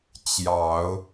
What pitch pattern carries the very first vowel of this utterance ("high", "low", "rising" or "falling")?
low